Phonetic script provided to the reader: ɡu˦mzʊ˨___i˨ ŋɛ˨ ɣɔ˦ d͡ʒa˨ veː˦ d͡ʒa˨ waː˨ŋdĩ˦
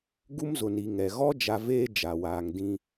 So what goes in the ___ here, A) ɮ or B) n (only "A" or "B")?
B